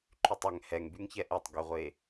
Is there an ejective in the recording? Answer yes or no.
no